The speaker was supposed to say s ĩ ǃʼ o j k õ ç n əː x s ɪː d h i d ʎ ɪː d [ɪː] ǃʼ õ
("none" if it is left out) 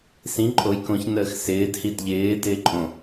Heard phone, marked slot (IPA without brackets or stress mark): ɪː